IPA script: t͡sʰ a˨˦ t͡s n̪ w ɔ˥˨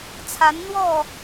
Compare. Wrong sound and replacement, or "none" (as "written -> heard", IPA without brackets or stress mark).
t͡s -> n